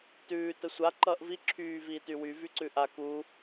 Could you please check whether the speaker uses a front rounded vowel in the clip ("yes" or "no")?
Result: yes